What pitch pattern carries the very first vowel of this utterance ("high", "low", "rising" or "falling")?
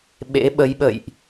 rising